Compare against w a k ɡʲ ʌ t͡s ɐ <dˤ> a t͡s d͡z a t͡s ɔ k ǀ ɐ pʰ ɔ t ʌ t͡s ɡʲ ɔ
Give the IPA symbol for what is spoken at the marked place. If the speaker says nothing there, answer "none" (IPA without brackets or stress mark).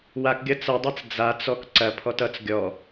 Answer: dˤ